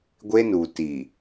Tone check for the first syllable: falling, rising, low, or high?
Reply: high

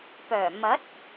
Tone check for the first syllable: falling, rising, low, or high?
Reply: low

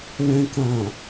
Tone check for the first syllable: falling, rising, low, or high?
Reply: low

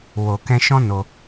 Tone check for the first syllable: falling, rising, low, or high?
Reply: low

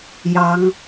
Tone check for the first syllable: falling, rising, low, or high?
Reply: rising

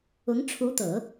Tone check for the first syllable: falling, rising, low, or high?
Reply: rising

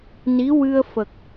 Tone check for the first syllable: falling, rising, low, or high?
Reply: rising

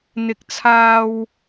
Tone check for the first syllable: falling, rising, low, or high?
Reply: low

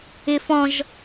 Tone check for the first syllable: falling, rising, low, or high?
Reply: high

